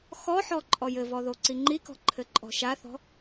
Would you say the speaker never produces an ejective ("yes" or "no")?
no